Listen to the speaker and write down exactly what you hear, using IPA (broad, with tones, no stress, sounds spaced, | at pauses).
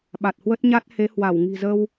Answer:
ɓ a˨˩ t̚ h w ə˦˥ t̚ ɲ a˦˥ t̚ h e˨˦ h w a˧˩ w ŋ i̤˨˩ z ə˧ w